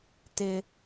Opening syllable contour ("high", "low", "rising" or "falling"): high